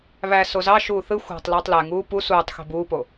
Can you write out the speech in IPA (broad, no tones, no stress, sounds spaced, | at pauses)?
β æ s o z ɑ ʃ uː θ ɯ xʷ ɑ̤ tˤ l ɯː tˤ l æ ŋ uː p u s uː tˤ x e̤ b uː p o